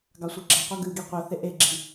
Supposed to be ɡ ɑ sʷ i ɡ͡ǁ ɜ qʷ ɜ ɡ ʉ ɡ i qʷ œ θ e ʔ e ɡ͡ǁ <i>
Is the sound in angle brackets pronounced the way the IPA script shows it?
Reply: yes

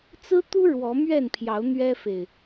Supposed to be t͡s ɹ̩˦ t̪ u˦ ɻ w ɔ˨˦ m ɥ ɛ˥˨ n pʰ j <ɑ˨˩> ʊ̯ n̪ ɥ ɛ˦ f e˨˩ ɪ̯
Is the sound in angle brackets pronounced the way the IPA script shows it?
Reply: no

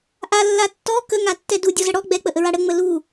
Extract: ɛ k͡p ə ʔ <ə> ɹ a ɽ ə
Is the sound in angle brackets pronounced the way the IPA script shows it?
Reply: yes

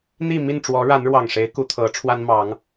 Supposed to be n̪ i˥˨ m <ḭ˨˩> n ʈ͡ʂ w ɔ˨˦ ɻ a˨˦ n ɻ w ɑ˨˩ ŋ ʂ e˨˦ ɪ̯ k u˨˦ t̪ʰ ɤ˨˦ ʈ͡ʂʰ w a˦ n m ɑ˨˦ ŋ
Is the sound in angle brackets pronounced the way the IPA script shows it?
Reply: no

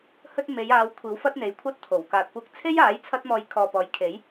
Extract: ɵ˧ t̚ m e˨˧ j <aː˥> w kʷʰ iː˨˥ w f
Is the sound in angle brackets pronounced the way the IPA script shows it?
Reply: no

